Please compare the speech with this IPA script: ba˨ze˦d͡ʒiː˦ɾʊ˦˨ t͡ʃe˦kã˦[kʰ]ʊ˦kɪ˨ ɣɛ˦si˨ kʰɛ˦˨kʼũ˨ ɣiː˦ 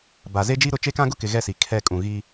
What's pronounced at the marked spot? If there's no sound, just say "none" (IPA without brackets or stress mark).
ɡ